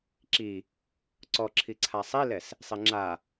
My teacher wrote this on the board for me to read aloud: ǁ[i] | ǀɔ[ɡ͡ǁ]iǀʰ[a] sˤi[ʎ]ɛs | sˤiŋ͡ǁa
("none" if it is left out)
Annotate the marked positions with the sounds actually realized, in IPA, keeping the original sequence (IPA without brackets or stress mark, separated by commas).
i, ǁʰ, a, l